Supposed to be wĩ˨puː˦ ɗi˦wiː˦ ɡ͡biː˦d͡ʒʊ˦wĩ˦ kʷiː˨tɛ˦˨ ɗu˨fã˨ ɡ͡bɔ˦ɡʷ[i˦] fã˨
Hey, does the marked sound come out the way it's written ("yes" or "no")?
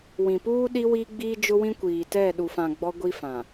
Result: yes